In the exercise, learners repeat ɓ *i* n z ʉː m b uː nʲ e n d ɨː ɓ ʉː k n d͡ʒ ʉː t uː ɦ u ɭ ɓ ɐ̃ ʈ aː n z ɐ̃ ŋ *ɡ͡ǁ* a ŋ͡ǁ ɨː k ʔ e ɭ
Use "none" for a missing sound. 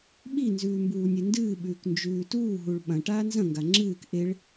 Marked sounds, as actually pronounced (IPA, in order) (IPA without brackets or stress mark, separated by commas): i, ɡ